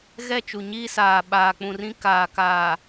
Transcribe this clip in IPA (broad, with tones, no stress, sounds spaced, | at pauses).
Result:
ɣ ɛ˦˨ t͡ʃ u˨ ɲ iː˦ s aː˨ ɓ aː˨ k͡p ũ˨ r ĩ˦ k aː˨ k aː˨